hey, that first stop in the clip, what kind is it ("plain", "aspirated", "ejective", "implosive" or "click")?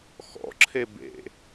click